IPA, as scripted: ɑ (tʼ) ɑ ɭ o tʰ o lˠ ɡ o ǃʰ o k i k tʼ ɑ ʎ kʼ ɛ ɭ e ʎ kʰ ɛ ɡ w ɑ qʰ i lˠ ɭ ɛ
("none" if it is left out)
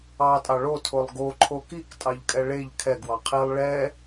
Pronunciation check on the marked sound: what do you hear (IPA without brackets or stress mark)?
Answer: tʼ